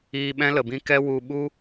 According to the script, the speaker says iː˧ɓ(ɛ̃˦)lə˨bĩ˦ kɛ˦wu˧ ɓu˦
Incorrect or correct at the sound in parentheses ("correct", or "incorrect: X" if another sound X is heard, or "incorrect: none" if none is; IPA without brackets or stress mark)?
correct